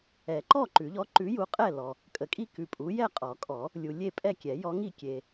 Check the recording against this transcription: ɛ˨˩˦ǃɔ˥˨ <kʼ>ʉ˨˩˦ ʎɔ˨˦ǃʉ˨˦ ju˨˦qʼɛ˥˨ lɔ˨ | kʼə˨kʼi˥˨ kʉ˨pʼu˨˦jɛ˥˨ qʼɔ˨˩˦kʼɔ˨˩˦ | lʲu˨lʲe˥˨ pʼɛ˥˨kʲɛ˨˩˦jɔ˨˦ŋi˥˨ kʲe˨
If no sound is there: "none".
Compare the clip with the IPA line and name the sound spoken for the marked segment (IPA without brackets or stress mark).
ǃ